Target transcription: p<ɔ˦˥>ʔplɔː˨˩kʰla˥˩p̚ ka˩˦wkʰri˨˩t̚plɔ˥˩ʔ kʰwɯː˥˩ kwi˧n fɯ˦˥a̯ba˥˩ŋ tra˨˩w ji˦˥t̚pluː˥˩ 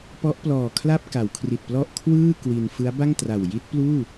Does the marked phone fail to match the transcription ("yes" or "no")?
no